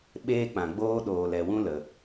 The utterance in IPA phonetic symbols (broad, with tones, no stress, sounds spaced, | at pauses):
ɓ eː˦ k͡p ã˨ ɡ͡b oː˦ ɗ oː˨ l ɛ˨ w ũ˦ l ə˨